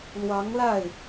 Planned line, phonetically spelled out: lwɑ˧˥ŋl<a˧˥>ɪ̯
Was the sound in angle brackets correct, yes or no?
no